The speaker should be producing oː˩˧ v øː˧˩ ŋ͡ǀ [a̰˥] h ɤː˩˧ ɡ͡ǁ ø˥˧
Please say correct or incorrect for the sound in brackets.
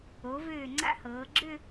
correct